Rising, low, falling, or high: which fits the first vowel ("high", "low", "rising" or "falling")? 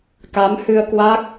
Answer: rising